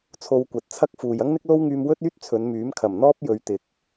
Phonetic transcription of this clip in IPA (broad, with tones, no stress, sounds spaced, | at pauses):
t͡sʰ o˧ w kʷ ɐ˨˥ t̚ t͡sʰ ɐ˥ k̚ f uː˨ j ɐ˥ ŋ n̪ ɪ˥ k̚ l o˥ w ŋ yː˧ m w ɵ˥ t̚ yː˥ t̚ t͡sʰ ɵ˨˧ n m yː˨˥ m kʰ ɐ˨˩ m n̪ ɔː˥ p̚ j ɵ˨˧ ɥ t̪ ɪ˨ k̚